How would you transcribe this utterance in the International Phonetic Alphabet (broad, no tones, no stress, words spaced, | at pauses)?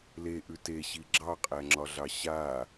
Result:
leʔʉ teɕi ɡ͡ǁɑqʼæŋ͡ǁɒɮɑ ɕa